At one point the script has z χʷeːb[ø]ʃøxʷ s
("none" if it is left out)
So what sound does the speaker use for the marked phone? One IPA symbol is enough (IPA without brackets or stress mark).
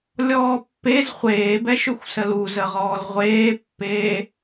ɛ